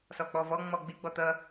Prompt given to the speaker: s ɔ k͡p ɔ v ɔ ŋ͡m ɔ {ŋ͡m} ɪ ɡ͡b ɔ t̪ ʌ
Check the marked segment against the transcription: incorrect: ɡ͡b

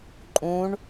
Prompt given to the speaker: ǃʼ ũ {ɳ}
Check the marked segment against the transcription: correct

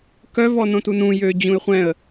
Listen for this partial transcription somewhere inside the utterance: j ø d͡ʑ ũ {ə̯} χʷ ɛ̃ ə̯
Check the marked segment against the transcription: incorrect: ɪ̯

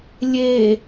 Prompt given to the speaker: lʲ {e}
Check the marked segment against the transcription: correct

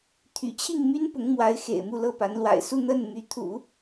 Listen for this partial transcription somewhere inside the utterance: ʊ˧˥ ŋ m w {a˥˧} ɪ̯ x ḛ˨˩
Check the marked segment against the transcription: incorrect: a˧˥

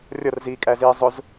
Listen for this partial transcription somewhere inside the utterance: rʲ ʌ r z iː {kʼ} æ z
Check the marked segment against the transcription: correct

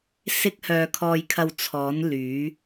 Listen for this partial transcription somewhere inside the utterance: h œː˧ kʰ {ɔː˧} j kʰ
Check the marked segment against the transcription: correct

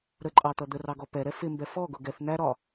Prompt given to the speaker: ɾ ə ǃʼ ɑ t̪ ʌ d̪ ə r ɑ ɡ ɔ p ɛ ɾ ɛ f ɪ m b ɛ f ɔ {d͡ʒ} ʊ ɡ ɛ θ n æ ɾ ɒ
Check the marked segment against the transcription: incorrect: ɡ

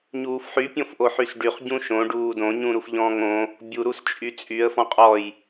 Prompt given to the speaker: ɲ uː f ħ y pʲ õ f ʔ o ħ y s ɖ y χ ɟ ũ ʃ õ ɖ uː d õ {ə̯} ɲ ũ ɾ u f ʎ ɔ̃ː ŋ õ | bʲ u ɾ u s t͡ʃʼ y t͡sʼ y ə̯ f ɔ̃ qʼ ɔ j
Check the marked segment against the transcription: incorrect: none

